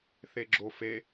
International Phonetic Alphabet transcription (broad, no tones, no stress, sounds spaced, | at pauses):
θ e ɡ͡ǁ o f e